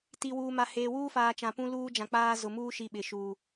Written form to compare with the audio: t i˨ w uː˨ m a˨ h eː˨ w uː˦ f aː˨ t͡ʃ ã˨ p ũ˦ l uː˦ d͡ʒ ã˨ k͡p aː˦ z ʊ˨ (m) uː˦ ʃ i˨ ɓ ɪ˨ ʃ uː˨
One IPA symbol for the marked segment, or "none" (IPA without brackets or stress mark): m